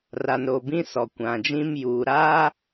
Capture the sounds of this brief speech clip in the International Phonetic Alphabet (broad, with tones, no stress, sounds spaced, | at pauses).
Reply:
r a˨ n ɾ o˨ b ĩ˦ s ɔ˨ kʷ ã˨ d͡ʒ ĩ˦ m j uː˨ ɾ aː˦